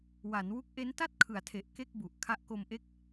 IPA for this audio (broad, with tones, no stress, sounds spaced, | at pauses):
w a˩˦ n w u˦˥ k̚ ʔ e˦˥ n t a˥˩ t̚ kʰ ɯ˩˦ a̯ tʰ e˨˩ ʔ k e˥˩ k̚ b u˨˩ ʔ kʰ a˦˥ ʔ k o˧ m ʔ e˥˩ k̚